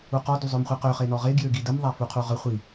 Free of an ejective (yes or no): yes